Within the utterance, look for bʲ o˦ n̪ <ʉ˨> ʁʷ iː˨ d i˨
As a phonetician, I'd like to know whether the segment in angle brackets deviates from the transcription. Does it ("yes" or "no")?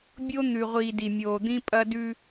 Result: no